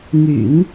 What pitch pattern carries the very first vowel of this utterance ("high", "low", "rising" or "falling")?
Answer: low